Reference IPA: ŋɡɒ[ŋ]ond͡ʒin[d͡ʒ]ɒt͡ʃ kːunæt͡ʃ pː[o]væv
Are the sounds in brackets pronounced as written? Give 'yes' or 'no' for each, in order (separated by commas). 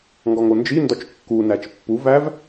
yes, no, no